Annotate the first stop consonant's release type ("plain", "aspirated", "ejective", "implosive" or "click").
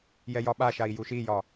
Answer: implosive